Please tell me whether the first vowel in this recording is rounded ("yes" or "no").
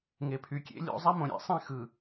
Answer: no